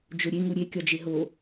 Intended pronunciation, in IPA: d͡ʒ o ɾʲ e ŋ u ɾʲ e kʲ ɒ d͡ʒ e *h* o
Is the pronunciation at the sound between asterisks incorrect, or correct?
incorrect